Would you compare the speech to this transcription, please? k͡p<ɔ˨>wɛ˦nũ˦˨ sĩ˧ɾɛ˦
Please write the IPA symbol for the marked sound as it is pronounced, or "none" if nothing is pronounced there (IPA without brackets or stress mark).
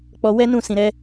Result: ɔ˧